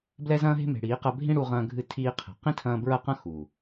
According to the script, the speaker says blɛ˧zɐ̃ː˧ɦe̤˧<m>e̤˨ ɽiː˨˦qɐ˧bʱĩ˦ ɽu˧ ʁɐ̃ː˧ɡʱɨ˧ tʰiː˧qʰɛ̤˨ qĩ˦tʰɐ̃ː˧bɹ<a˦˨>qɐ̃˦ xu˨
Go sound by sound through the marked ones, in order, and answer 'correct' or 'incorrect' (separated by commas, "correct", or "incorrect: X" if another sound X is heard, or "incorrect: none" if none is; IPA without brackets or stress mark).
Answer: correct, incorrect: ɐ˦˨